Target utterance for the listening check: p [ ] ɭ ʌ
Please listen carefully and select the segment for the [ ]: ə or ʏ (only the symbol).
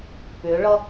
ʏ